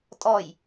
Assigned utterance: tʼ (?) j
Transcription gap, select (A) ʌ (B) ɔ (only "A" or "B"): B